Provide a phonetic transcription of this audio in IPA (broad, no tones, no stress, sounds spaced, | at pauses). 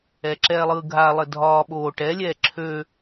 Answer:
ɛː ǁ ɛː lˠ ɯː ɡʱ a lˠ ɘ dʱ ɒː ɓ oː ʈ ɛ lʲ ɛː ǁʰ ø